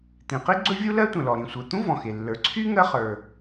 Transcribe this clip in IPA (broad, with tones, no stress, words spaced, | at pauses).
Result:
t̪ĩ˩qi˥ ɡ͡ǀɵ˥vʲu˥lɜ˥tʷə̃˩ lɔ˩ɾĩ˩ sʷə˞˩t̪ũ˥ vɔ̃˩xe˩ lːə˞˩ǀʰy˥ ŋɜ˥χə˞˩